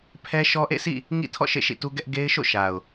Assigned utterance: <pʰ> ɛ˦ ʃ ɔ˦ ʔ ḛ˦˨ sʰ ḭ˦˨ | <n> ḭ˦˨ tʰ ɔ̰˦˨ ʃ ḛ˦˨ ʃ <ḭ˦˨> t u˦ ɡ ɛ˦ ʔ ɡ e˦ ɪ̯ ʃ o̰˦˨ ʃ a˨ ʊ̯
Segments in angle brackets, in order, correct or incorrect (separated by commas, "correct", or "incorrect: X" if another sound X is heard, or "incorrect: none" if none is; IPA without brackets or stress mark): correct, incorrect: ŋ, correct